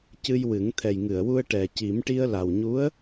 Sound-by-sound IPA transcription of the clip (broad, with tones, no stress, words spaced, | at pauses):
cɨ˧jwɨ˨˩˦ŋ t̪ʰɛ˨˩jŋɨ˨˩˨ə̯wu˧ə̯ ʈɛ˨˩ ci˨˩˦mʈi˧ə̯la˨˩wɲu˧˥ə̯